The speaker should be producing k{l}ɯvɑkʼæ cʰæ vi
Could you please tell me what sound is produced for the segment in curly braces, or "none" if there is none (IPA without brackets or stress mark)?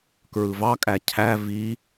ɹ